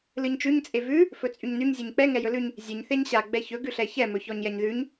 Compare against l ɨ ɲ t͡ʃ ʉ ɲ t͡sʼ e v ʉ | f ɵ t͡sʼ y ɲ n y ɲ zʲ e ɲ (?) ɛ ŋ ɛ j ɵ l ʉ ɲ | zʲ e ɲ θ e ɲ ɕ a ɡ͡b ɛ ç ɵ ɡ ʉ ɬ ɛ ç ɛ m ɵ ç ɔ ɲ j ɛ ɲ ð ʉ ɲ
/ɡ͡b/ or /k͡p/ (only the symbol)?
k͡p